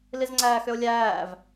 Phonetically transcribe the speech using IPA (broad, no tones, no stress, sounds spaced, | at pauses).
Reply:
l i z ŋ͡ǀ æː x ʏ o̯ lʲ æː v